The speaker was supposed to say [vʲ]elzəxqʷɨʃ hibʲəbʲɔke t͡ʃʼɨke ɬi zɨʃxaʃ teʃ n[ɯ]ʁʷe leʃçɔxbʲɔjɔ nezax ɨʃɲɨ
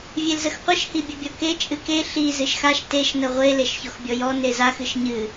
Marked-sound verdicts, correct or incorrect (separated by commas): correct, incorrect